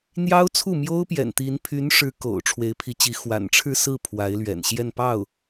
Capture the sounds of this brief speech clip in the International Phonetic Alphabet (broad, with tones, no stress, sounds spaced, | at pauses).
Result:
n̪ j ɑ˥ ʊ̯ t͡sʰ u˥˩ m j o˥ ʊ̯ p j ɛ̰˨˩ n t̪ i˧˥ n pʰ y˧˥ n ʂ ɻ̩˧˥ k o̰˨˩ ʊ̯ ʈ͡ʂʰ w e˧˥ ɪ̯ pʰ i˧˥ t͡ɕ i˧˥ x w a̰˨˩ n ʈ͡ʂʰ ɻ̩˥˧ s ɹ̩˥˩ pʰ w a˧˥ ɪ̯ l ɥ ɛ̰˨˩ n ɕ j ɛ˥˧ n p ɑ˥˩ ʊ̯